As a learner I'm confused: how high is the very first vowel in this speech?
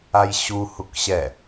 low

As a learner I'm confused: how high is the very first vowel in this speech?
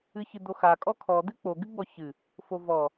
high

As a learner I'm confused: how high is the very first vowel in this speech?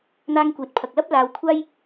low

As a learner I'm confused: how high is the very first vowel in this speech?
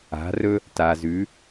low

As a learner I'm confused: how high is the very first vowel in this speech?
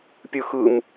high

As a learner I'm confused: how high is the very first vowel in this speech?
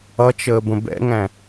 mid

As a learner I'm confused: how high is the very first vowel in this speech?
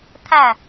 low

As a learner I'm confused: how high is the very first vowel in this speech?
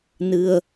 high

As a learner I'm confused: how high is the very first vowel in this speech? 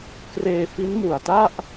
mid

